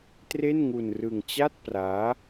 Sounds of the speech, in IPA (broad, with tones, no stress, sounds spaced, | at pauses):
t r e˥˩ n ŋ u˧ n r ɯ˧ ŋ t͡ɕ a˥˩ t̚ p r aː˦˥